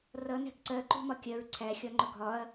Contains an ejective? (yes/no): no